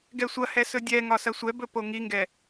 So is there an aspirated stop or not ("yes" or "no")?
no